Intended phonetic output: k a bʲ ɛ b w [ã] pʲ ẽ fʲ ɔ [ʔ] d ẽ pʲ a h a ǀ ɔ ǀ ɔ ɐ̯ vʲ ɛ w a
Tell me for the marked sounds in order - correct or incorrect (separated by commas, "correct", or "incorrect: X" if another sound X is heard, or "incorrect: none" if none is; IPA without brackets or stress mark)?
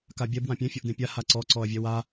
correct, correct